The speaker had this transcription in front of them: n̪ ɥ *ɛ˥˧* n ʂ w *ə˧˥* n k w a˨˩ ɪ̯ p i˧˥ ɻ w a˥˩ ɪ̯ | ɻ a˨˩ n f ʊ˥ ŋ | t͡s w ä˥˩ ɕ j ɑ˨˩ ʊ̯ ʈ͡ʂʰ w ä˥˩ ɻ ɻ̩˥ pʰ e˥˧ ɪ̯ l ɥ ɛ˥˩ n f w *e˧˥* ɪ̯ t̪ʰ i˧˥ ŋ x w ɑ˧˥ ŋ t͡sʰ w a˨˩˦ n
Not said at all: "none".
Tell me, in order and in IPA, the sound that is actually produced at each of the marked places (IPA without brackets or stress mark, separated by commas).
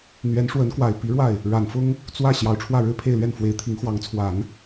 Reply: ɛ˧˥, ə˧˥, e˧˥